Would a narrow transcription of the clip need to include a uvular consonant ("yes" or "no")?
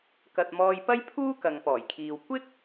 no